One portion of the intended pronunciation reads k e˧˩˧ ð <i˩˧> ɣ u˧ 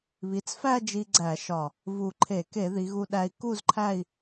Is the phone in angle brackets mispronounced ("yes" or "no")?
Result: no